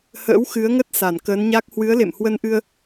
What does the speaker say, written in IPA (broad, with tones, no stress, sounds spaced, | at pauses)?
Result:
h ə̰ː˧˥ w x ɨ˨˦ ə̯ ŋ ə˦˥ t̚ s a˧˩ n k əː˨˦ n ɲ a˦˥ k̚ h w ɨ˨˦ ə̯ l ḛ˧˨ m h w ə˧ n ʔ ɨ˧ ə̯